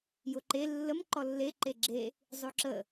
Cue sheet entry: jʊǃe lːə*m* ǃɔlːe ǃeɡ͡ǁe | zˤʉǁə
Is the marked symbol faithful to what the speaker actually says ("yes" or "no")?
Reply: yes